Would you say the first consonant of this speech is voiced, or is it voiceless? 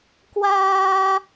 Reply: voiceless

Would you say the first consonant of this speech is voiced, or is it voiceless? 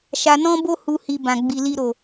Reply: voiceless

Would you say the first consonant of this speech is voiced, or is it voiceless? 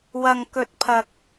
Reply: voiced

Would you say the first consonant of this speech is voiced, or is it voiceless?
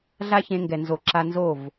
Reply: voiced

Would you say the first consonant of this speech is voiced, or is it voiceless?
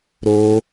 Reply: voiced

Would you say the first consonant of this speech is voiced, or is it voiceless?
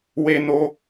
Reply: voiced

